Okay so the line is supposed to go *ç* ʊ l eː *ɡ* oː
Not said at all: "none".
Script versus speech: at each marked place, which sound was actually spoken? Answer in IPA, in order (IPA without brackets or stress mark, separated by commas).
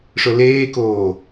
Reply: ʂ, k